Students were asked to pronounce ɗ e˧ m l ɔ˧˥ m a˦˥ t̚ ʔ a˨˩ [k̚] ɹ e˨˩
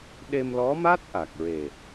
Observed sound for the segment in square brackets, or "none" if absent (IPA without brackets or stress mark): k̚